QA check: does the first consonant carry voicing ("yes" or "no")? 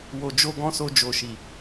yes